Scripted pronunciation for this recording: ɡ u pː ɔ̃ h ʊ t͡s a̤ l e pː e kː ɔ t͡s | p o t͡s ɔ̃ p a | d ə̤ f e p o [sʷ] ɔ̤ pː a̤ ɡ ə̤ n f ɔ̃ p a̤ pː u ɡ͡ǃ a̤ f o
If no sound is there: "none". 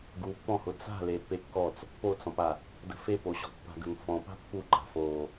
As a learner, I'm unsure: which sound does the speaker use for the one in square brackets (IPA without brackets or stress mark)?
ɕ